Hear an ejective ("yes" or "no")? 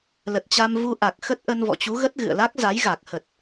no